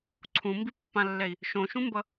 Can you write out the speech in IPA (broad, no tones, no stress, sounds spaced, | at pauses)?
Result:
ǀʰ ũ m b i pː ã lː ɛ i̯ | ʃ õ ʃ ũ m b ʌ